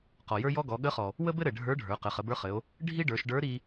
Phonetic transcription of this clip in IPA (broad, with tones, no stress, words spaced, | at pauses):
qɔ˩jə˞˥jɔ˥ɡɔ˩˧ ɠə˧˥χɔ˩ | wə˥bɘ˥ɾɘ˩ ɖʱə˞˧˥ɖʱə˞˩˧ qɘ˩˧χə˩˧bə˞˧˥χɘ˩˧o̯ | ɖʱi˥ɖə˞˩˧ʃ ɖə˞˧˥ɾi˧